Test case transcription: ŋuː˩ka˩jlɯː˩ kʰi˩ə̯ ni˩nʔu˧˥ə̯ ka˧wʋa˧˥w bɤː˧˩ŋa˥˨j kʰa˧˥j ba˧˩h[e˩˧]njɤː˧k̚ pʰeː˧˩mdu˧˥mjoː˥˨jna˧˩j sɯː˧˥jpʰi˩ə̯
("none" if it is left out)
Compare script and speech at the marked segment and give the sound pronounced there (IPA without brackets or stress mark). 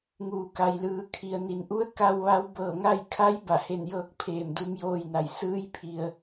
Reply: e˧˩